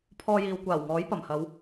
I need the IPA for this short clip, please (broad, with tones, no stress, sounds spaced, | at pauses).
pʰ ɔː˧ j iː˨ w kʷ aː˨˩ w ŋ ɔː˨˥ j p ɐ˨˩ m h ɐ˨˧ w